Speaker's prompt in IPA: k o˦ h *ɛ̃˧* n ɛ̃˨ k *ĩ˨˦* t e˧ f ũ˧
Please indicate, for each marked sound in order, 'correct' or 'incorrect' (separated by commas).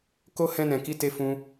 correct, incorrect